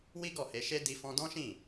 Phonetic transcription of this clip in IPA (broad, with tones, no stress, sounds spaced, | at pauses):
w i˦ ɡ ɔ˦˨ h e˧ ʃ e˦ d i˧ f ɔ̃˧ d ɔ̃˦ ʃ ĩ˦˨